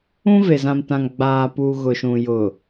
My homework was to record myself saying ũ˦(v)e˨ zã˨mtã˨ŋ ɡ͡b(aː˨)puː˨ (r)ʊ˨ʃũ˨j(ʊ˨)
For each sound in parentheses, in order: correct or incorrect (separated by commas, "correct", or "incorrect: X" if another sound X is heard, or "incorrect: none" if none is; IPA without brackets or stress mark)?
correct, correct, incorrect: ɣ, correct